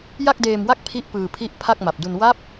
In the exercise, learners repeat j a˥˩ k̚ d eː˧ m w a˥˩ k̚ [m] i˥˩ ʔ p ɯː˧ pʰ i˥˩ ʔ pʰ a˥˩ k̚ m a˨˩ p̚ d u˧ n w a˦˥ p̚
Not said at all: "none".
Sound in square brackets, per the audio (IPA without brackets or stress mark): pʰ